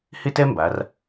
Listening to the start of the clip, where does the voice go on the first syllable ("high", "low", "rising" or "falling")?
falling